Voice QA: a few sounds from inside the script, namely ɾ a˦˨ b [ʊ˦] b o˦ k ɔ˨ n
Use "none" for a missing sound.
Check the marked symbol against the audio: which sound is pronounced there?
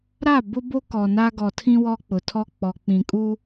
ʊ˦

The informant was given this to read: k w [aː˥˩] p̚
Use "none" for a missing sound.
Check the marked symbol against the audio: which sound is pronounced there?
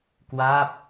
aː˥˩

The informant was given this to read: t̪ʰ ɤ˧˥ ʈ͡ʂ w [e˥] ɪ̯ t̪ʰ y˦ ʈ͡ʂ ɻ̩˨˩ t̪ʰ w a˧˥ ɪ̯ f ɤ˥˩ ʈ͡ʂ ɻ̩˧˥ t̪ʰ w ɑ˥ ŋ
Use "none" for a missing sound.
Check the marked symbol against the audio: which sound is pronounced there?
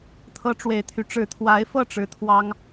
e˨˩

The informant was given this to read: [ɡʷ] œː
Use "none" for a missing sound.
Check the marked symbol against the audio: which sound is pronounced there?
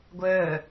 ɡʷ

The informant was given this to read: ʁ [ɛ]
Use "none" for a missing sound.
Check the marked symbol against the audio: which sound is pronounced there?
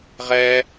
ɛ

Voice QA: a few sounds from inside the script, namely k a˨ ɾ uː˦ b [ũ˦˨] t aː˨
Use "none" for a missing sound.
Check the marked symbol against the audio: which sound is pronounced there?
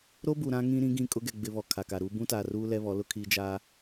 ũ˦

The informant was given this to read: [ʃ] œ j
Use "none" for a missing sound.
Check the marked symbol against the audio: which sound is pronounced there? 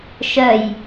ʃ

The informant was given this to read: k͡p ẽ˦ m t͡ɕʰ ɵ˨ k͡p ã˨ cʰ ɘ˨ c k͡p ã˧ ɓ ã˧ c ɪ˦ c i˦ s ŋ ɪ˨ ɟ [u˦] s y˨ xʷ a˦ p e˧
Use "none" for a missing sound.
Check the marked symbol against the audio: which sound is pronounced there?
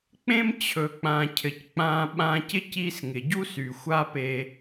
u˦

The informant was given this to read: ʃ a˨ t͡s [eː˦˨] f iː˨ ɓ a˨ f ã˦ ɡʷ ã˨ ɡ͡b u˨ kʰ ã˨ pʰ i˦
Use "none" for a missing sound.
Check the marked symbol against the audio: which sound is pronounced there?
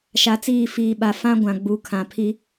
iː˦˨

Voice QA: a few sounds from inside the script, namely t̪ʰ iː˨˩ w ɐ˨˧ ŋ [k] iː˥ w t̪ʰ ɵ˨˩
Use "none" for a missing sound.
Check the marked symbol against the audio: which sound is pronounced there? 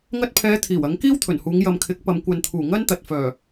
k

